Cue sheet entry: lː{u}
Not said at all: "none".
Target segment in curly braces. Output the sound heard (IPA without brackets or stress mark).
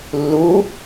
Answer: u